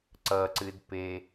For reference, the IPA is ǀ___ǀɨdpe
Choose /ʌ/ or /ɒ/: ʌ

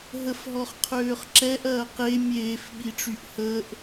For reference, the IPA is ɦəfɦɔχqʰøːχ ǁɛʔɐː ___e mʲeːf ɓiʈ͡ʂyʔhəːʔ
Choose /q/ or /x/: q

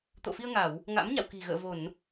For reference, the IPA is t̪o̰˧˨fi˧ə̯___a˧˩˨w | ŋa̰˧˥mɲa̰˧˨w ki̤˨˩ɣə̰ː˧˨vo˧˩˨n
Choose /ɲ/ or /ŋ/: ŋ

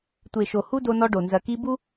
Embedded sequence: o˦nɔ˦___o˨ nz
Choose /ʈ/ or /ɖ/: ɖ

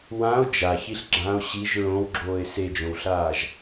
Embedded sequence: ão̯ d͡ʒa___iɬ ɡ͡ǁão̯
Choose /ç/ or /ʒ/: ç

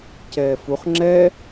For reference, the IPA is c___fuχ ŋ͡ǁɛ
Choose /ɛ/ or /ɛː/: ɛː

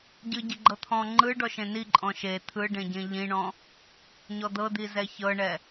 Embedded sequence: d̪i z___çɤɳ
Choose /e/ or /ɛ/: ɛ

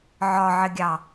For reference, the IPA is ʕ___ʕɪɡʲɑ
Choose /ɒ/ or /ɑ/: ɒ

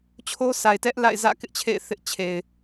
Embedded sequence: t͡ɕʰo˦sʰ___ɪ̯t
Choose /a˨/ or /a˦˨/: a˨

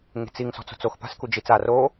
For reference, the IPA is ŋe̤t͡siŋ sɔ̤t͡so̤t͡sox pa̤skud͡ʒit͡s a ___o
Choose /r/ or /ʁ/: r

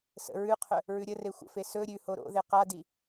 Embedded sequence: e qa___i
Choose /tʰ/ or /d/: d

